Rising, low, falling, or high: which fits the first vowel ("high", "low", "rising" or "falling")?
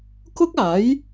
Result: high